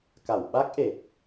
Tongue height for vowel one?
low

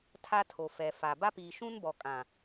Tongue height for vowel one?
low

